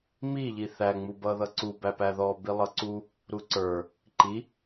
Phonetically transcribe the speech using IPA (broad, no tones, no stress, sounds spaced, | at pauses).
m i ʎ i θ æ ŋ͡m u b ʌː ð ʌ ǀ u b æ p æ ð ɔː b i lˠ ʌ ǀ u | ɾ u ǀ ə˞ | ǃ i